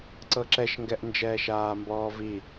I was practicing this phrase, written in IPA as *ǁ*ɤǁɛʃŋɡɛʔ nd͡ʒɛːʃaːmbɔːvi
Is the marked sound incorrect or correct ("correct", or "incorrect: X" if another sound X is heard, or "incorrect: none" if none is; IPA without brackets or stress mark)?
incorrect: ǀ